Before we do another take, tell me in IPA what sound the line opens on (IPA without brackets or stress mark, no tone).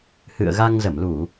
h